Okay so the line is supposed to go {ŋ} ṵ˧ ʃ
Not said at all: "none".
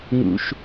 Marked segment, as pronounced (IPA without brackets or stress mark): ŋ